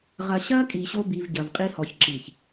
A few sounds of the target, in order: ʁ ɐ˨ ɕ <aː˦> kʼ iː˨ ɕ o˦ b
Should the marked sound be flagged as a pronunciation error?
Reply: yes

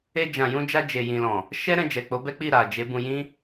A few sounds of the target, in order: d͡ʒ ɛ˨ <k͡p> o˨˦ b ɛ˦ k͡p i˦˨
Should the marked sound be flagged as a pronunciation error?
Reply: no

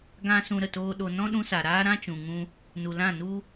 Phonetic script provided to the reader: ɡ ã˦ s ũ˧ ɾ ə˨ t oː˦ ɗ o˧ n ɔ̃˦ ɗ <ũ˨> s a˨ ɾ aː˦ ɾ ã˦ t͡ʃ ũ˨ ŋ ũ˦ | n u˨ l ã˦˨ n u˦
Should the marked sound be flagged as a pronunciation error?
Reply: yes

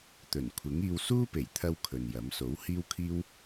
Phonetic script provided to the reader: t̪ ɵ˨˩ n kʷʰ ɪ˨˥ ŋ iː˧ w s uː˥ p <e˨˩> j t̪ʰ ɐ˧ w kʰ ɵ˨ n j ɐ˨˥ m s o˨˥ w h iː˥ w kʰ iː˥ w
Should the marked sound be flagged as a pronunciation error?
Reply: no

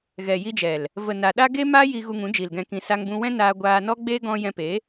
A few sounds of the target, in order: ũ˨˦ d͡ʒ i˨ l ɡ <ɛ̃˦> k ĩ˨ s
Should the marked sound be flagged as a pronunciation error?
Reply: yes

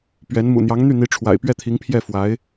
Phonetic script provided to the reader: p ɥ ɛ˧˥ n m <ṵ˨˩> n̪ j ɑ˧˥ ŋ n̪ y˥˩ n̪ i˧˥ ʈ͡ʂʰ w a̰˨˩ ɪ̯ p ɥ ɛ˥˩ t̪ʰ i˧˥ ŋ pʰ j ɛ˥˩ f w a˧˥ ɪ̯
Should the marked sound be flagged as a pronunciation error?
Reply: no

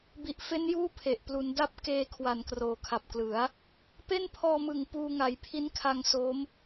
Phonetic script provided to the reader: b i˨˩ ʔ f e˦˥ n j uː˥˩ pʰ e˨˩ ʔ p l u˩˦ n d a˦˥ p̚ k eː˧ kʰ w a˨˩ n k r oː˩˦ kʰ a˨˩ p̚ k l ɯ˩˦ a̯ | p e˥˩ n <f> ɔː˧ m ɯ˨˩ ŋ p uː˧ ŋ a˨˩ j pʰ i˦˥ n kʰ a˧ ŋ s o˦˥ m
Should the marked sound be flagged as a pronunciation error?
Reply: yes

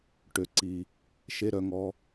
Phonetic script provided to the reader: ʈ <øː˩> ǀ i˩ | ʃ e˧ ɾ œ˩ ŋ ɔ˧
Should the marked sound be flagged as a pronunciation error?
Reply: yes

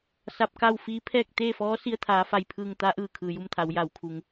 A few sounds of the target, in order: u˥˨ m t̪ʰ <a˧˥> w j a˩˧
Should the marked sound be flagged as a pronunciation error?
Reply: yes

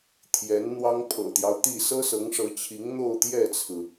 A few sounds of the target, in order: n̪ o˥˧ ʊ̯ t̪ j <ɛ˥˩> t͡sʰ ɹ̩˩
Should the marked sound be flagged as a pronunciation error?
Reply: no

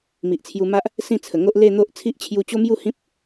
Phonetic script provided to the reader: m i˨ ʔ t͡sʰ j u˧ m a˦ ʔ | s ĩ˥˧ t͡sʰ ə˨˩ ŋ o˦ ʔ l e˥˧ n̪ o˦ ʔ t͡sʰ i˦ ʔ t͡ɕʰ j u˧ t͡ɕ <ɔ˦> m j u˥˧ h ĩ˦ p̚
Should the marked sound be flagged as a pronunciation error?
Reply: yes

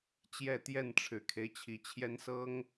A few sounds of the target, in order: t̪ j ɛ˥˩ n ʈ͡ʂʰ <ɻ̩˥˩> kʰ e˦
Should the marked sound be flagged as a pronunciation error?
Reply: yes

